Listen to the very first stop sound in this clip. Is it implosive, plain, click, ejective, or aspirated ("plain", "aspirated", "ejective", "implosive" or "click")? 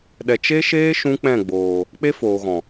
implosive